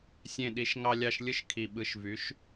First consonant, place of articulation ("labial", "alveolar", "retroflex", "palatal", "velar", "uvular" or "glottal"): alveolar